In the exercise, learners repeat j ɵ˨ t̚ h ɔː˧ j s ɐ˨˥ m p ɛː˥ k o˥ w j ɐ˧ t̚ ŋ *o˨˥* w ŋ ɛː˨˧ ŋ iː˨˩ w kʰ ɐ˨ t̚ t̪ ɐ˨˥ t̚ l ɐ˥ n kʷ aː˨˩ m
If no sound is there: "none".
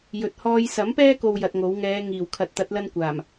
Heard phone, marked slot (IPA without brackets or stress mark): o˨˥